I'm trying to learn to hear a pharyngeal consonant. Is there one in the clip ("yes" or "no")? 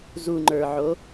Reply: yes